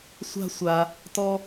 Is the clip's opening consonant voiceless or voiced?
voiceless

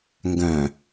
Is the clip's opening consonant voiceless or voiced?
voiced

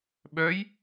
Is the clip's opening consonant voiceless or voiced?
voiced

